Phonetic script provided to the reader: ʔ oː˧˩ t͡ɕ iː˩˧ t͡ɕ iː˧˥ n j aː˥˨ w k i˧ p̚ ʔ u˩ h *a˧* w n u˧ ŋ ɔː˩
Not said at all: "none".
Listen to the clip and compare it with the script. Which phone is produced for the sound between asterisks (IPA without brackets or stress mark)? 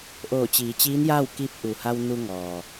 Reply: a˧